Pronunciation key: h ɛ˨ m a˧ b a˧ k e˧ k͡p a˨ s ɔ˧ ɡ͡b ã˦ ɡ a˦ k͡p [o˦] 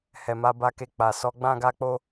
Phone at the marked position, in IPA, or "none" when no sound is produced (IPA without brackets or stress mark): o˦